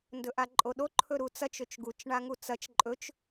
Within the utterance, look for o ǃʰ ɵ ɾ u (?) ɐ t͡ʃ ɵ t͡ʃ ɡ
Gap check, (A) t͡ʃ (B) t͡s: B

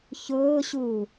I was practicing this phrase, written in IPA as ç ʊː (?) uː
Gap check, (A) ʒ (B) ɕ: B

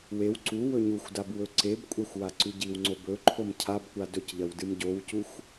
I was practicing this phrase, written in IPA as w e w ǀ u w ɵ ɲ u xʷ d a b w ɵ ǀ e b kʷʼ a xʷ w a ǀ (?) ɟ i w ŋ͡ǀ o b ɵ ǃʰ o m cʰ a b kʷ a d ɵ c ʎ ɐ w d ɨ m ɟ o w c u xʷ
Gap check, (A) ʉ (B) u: A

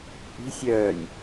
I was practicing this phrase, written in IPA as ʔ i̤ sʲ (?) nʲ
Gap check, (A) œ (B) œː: B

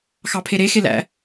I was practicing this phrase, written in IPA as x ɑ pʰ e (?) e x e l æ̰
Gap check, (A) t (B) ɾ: B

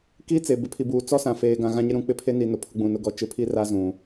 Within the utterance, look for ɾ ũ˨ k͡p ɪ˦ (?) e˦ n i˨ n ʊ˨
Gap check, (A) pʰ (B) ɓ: A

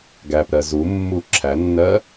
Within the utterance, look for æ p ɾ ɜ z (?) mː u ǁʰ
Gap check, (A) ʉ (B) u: B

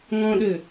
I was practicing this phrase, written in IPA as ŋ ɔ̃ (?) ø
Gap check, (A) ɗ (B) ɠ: A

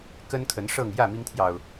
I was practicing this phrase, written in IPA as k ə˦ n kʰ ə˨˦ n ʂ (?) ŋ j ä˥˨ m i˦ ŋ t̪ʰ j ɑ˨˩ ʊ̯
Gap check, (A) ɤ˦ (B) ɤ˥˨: B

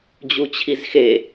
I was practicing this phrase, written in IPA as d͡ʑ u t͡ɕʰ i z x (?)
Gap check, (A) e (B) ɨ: A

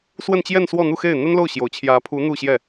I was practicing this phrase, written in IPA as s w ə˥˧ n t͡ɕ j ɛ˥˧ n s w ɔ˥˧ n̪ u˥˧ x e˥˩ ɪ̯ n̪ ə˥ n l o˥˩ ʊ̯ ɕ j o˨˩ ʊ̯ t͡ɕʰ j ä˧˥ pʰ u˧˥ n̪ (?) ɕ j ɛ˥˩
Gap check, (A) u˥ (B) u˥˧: B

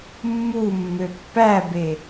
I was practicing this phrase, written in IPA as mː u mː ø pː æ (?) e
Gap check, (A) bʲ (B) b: B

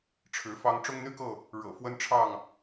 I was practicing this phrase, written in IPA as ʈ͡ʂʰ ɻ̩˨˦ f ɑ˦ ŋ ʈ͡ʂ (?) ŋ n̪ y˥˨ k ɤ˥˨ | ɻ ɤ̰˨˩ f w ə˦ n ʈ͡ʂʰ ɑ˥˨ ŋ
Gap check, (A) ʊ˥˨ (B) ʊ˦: B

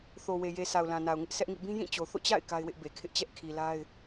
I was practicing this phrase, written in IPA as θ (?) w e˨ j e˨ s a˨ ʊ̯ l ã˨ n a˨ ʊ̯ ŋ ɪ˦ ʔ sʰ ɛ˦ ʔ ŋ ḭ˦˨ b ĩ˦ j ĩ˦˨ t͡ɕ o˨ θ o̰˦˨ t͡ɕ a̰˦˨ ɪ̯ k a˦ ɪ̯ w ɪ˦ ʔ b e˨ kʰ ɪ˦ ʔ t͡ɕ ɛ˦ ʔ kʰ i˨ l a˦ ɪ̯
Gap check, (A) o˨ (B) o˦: A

